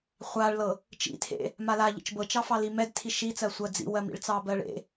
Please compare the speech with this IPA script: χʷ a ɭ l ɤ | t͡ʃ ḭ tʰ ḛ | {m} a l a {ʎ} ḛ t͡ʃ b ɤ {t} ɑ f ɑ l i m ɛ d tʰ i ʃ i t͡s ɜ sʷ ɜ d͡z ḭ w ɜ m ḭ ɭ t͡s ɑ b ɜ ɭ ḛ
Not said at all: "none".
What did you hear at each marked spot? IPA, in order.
m, ʎ, t͡ʃ

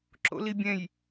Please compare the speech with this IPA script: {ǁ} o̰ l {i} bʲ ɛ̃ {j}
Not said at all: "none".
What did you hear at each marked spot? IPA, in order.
ǁ, i, j

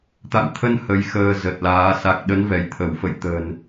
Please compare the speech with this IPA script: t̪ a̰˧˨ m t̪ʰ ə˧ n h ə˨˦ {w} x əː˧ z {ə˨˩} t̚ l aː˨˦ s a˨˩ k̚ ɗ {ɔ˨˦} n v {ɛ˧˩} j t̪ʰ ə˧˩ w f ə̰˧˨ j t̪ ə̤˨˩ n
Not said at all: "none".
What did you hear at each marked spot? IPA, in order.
j, ə˨˩, ə˨˦, ɛ˧˩

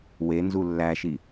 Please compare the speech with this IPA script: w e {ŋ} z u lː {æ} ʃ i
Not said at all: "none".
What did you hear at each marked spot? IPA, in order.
n, æ

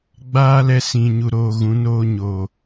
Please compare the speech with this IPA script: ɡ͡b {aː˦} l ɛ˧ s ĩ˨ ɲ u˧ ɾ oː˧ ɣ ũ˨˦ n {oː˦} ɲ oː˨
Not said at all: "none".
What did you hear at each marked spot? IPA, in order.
aː˦, oː˧

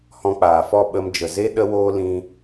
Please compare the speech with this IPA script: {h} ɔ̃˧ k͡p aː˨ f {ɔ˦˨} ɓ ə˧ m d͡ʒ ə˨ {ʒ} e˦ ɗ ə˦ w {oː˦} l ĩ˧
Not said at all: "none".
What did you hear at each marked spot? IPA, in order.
h, ɔ˦˨, z, oː˦

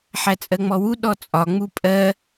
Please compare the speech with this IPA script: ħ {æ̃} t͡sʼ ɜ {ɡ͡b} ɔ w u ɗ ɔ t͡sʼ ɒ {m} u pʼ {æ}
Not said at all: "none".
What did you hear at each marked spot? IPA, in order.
æ, ŋ͡m, ŋ͡m, ɜ

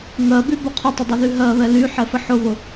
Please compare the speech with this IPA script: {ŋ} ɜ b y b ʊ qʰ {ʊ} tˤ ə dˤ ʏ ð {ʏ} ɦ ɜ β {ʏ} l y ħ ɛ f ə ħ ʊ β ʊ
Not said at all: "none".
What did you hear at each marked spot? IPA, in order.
ŋ, ʊ, y, ɛ

